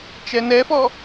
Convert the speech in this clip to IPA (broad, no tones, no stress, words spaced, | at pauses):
t͡ʃɛnɛfɔ